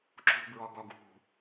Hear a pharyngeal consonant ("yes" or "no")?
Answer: no